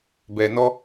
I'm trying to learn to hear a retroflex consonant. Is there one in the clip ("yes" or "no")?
no